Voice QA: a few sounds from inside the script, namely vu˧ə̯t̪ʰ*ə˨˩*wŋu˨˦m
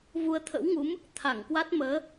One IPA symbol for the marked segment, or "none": ə̰˧˥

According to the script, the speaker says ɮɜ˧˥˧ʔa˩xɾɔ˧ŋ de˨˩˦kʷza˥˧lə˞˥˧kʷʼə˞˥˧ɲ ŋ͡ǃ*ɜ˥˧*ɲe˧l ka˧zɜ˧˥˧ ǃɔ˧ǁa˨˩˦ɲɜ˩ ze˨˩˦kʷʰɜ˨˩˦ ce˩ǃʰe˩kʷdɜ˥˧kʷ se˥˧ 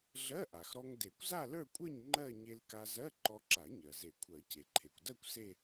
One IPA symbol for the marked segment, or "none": ɜ˥˧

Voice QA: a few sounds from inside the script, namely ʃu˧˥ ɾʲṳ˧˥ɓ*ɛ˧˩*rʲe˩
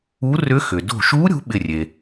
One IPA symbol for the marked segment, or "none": ɪ˧˩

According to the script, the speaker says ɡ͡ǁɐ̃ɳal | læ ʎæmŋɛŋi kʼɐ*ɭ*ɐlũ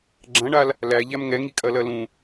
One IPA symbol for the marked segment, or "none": l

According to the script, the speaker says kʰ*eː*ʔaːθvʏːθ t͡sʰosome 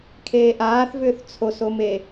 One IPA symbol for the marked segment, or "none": eː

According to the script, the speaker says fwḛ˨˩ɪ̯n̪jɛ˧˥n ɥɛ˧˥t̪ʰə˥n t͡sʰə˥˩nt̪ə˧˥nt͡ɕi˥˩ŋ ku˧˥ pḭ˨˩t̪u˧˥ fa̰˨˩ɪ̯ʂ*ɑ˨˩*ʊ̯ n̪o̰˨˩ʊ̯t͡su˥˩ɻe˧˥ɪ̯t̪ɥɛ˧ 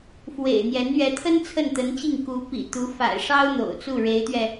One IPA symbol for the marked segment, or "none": ɑ˥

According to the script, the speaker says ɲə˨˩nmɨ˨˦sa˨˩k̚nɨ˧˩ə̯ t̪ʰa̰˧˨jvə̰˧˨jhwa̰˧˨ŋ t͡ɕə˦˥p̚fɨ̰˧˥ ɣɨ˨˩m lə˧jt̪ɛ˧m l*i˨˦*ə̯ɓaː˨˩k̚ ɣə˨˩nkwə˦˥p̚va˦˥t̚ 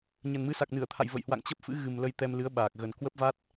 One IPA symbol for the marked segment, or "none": ɨ˨˦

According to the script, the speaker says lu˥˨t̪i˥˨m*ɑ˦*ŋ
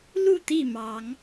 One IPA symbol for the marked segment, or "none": ɑ˨˦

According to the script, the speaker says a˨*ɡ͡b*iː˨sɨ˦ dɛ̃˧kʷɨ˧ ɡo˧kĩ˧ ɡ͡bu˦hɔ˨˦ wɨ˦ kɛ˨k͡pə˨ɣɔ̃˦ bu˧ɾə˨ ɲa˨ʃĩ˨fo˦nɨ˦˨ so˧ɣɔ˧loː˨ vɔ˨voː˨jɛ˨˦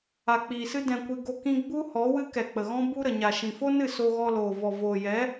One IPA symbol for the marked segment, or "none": k͡p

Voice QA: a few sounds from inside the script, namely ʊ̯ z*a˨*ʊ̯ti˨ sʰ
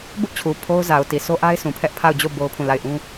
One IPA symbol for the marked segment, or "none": a˨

